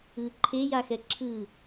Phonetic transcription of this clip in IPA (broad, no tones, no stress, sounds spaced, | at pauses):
ɯ ǃʰ e j a x ɛ ǁʰ ɯ